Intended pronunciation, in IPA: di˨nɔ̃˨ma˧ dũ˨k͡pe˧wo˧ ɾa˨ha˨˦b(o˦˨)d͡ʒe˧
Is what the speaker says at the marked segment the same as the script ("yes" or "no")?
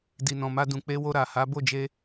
yes